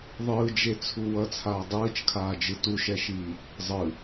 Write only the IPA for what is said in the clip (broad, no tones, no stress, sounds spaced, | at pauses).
ðˤ ɯː d͡ʒ e t͡sʰ u w ʌ t͡sʰ aː dˤ ɯː t͡ʃ kʰ aː d͡ʒ ɯ t u ʃ ɛ ʃ iː | zˤ ɯ